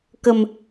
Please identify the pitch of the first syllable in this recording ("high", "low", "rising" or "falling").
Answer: low